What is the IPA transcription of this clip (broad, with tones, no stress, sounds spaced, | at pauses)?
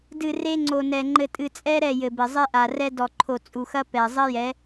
d ɨ˨ r e˦ ŋ͡ǀ o˨ n ɛ˨ ŋ͡ǃ ɘ˨ tʼ ɨ˨ t͡sʼ ɛ˦ ɾ ɛ˦˨ j ɘ˨ b ɘ˨ zˤ e˦ ʔ a˨ r ɛ˦ d ɔ˨ ǃʰ o˨ t͡sʼ u˨ x ɐ˦ p ɛ˨ zˤ ɘ˦ j ɛ˨˦